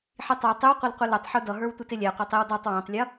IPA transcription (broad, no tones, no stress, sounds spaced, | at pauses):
ħ i tˤ ə˞ tˤ ɪ w qʷ ɪ l qʷ ɪ l ə tˤ ħ u d ʌ ɦ ə˞ w tʷ ɪ t ɪ lʲ æ qʷ æ tˤ i w d ɔ tˤ w æ̃ tˤ lʲ ʌ